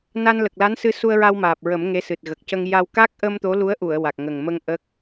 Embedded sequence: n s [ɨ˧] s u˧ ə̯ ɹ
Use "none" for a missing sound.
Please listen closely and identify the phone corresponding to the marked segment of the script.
ɨ˧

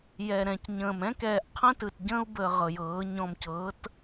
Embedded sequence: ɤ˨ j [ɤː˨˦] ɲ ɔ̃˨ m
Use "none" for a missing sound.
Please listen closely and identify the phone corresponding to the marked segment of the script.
ɤː˨˦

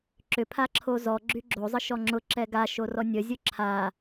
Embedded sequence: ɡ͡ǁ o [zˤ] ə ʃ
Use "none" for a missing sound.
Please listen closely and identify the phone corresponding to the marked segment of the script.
zˤ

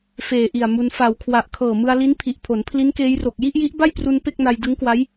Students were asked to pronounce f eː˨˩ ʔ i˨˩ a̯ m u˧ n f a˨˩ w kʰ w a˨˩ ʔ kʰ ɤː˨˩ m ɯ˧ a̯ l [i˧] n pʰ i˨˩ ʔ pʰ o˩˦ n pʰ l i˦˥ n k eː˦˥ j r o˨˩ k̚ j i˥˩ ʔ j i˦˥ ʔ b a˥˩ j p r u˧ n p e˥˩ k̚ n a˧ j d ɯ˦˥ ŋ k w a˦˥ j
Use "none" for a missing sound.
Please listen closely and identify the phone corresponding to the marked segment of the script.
i˦˥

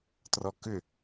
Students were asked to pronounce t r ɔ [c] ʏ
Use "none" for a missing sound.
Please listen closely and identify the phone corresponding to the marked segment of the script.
k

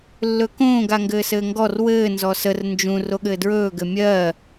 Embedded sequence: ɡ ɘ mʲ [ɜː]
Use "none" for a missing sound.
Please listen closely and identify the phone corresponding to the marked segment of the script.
ɜː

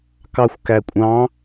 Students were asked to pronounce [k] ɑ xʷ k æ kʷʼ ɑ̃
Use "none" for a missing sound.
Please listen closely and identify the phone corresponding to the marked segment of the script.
k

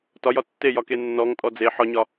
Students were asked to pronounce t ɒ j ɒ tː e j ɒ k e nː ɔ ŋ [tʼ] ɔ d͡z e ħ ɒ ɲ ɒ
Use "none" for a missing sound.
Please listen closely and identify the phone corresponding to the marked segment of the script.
tʼ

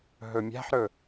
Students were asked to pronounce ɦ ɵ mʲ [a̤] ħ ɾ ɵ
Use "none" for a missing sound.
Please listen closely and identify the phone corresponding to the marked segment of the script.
a̤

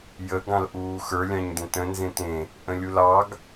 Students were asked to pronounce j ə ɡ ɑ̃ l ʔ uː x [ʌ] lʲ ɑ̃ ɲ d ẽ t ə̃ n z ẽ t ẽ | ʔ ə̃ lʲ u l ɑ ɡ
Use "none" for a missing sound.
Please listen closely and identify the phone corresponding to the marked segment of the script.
ə˞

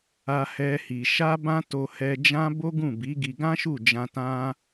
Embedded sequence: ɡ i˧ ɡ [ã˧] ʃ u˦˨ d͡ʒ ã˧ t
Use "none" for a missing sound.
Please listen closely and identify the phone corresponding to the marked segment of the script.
ã˦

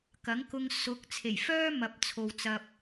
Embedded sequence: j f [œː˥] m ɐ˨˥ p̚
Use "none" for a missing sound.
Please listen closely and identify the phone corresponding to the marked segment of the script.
œː˥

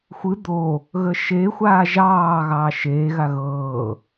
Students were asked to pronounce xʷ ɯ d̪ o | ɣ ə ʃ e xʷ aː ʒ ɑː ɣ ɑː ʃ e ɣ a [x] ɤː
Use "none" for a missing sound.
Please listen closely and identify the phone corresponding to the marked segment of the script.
ɣ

